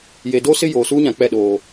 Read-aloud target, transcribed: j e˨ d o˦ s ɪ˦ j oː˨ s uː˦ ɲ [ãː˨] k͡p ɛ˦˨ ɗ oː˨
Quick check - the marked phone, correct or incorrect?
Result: incorrect